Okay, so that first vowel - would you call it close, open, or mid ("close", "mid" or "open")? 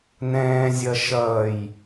mid